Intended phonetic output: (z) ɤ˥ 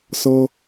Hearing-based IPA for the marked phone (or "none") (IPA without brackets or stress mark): s